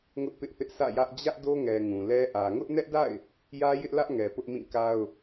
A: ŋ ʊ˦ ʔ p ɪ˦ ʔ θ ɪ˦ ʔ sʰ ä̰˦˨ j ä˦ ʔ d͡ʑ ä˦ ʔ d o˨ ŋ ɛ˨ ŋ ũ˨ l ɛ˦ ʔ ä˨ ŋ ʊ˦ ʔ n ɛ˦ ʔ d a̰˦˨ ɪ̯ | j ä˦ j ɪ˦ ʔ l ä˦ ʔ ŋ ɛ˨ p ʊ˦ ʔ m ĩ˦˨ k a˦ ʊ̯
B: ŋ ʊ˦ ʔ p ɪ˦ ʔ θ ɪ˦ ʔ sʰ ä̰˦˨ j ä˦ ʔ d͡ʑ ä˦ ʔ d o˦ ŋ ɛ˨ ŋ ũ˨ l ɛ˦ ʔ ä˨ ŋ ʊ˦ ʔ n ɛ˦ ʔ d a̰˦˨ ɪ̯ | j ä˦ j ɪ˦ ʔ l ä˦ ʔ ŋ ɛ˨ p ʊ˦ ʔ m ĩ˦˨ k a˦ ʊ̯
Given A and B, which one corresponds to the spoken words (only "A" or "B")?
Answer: B